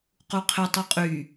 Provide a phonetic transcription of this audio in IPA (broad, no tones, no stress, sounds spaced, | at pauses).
q u qʰ ɪ tˤ u qʼ y